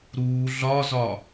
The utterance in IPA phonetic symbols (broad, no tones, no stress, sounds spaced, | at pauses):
ɾ uː ɮ ɒ z ɒ